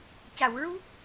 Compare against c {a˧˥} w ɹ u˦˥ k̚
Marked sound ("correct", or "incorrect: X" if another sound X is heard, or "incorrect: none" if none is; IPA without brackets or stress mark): incorrect: a˨˩˨